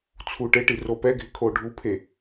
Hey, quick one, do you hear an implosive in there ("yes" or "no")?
no